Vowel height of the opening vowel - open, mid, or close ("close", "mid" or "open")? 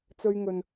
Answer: mid